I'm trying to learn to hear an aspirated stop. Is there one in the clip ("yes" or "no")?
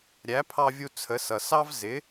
yes